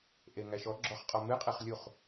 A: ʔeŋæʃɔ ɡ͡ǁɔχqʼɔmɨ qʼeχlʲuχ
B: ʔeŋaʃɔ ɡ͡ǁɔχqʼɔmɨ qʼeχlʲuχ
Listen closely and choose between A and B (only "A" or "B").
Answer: A